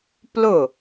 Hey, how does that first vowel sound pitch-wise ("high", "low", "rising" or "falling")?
falling